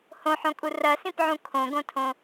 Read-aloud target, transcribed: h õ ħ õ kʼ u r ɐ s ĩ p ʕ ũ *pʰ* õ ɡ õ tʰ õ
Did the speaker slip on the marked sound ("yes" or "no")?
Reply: yes